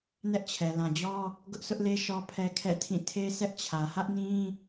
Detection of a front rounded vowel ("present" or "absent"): absent